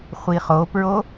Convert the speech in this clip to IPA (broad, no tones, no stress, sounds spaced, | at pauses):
χʷ i χ o p ɹ o